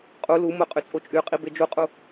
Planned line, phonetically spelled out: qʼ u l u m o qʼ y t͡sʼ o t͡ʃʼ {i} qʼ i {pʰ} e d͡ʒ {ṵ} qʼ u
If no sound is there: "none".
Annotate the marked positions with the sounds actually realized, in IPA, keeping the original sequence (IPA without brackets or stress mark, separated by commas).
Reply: y, b, u